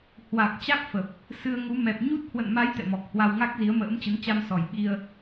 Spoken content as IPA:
h w a˨˩ k̚ t͡ɕ a˦˥ k̚ f ə˨˩ p̚ | s ɨ˧ ə̯ ŋ u˨˦ m ɛ˨˩ p̚ ɲ u˦˥ t̚ h w ə̰˧˨ n m a˨˦ j t̪ ɛ̰˧˨ m ɔ˨˩ k̚ h w a˧ w ŋ a˦˥ k̚ z i˨˦ ə̯ m ə̰ː˧˥ m t͡ɕ ə˨˦ n t͡ɕ a˧ m s ɔ˨˩ j ɓ i˧ ə̯

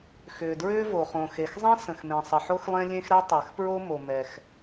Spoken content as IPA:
x ʏː˩ d ɹ ʏː˥ v o˩ χ õ˩ x e˩ x zˤ ɛ̃˥ s ə̃˩ x m ẽ˩ sˤ ə˩ ħ o˥ x lˠ ẽ˥ lʲ ẽ˥ x ɾ ɛ˥ tˤ ɛ˩ x p ɹ o˥ m o˩ m ɛ˩ x

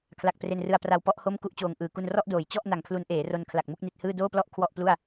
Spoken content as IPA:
kʰ l a˨˩ k̚ p r e˧ n r ɯ˧ a̯ p r a˧ w p ɔ˥˩ ʔ h o˥˩ m k u˥˩ ʔ t͡ɕ oː˧ ŋ ʔ ɯː˨˩ k u˧ n r ɔ˥˩ ʔ d oː˩˦ j t͡ɕ ɔ˥˩ ʔ n a˨˩ ŋ pʰ l u˦˥ n ʔ eː˩˦ r o˧ n kʰ l a˨˩ k̚ m u˥˩ k̚ n i˦˥ t̚ h ɯː˥˩ d oː˥˩ p l ɔ˥˩ ʔ kʰ w ɔ˥˩ ʔ p l u˥˩ a̯

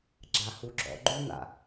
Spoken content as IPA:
ɡ͡ǁ a h u ɡ͡ǁ ɔ̰ ɡ͡ǃ u n̪ a̰

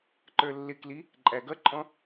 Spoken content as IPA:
ǃ ə˞ lː ɪ k l i | ǃʼ æ ɡ ʌ ǃʼ ɔ̃

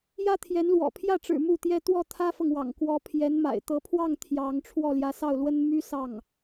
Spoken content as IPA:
j ä˥ t̪ʰ j ɛ˧˥ n l w ɔ̰˨˩ pʰ j ä˥˩ ʈ͡ʂ ɻ̩˨˩ m u˥˩ t̪ j ɛ˥ t̪ w ɔ˥˩ t̪ʰ ä˥ f ɤ˨ ŋ w ɑ̰˨˩ ŋ k w ɔ˧˥ pʰ j ɛ˧˥ n m a̰˨˩ ɪ̯ t̪ ɤ˧˥ pʰ w ɑ˥˩ ŋ t̪ʰ j ɑ˧˥ ŋ ʈ͡ʂʰ w ɔ˥˩ l j ä˧˥ s ɑ˥˩ ʊ̯ l w ə˥ n m y˥ s ɑ˥˩ ŋ

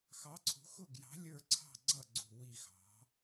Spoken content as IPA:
x ɑ˨˥ ǀʰ ṳ˨˥ x ʊ˦˨ ɡ j ɑ̤˨˥ lʲ ə˞˦˨ ǀʰ ɑ̤˦˨ ɡ͡ǀ ʌ˦˨ ɡ͡ǀ ṳ˦˨ w i˦˨ x ɑ̤˨˥

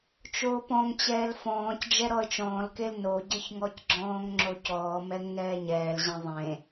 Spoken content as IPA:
t͡ʃ oː p ɔ̃ ŋ t͡ɕ ɛː l f ɔ̃ː c d͡ʒ ɛ ɾ ɔ ə̯ t͡ʃ ɔ̃ː l k e l n o ɟ ɘ ç ŋ ɔ c ɡ͡ǁ ɔ̃ː ŋ ŋ͡ǁ o c ɔː m ɛ ŋ n ɛː ɲ ɛː l ʑ ẽ ðˤ ẽ

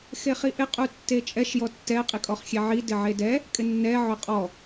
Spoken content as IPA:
x e χ i ʔ ɪ qʼ u tː e t͡ʃʼ ɛ ʃ j ɔ tː ɛ qʼ i kʼ ɔ χ xʲ e ʕ i d ɪ ʕ e d ɛ | kʼ ɪ nː ɛ ʕ ʊ qʼ ɔ

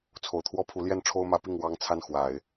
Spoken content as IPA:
t͡sʰ o˨˩ ʊ̯ t̪ʰ w ɔ˥ pʰ u˧˥ l j ɛ˥˩ n ʈ͡ʂʰ o˥ ʊ̯ m ä˧˥ p i˥˩ ŋ w ɑ˥ ŋ t͡sʰ a˥˩ n x w a˨˩˦ ɪ̯

